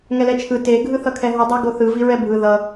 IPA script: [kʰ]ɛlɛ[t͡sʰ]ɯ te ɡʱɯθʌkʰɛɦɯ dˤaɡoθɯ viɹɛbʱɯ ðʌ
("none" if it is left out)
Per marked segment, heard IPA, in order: ŋ, t͡ʃʰ

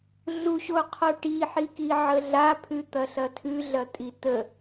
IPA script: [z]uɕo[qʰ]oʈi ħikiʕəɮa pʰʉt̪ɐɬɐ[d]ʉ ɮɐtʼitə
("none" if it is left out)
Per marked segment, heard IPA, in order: ɮ, qʰ, tʰ

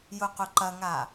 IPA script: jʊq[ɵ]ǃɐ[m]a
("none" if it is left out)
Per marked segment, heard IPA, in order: ʊ, ŋ

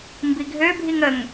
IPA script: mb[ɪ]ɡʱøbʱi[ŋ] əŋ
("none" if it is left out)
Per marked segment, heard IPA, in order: i, ŋ

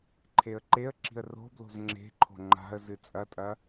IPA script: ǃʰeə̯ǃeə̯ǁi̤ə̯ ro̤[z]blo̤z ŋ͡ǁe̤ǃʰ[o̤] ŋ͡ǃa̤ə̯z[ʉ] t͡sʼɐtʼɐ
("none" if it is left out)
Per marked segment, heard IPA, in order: none, o̤, ɨ

